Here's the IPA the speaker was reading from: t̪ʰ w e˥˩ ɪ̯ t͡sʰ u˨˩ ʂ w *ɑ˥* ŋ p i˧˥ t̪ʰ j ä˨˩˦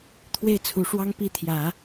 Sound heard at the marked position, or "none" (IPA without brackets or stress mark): ɑ˥